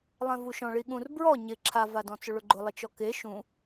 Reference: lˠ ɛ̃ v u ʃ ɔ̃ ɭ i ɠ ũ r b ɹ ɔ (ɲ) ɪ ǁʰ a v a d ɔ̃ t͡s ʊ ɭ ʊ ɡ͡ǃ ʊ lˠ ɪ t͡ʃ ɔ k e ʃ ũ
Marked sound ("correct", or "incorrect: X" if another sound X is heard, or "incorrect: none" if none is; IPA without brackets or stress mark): correct